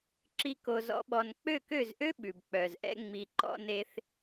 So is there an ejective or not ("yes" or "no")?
no